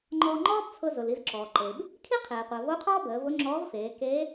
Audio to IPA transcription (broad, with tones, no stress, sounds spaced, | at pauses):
ŋ͡ǃ ɔː˧ ŋ͡ǃ ɔː˥ b t͡sʰ ʊ˧ z ʊ˩ l i˧ z ǁ ɔː˩ ǃ e˩ b | kʰ i˥ qʰ eː˩ qʷ əː˩ v o˧˥ qʰ ɔː˥ b əː˩˧ v ʊ˧˥ ŋ͡ǁ ɔː˧˥ v f eː˩˧ k eː˧˥